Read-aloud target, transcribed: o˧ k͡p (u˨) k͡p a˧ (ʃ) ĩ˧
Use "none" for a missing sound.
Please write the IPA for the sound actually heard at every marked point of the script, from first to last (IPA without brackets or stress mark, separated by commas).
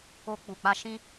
u˨, ʃ